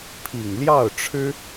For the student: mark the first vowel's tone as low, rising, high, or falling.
low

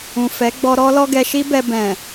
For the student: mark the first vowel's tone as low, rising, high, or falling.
low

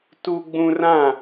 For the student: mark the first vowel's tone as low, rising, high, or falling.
high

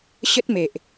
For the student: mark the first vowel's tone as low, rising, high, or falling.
high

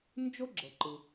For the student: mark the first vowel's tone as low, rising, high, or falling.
high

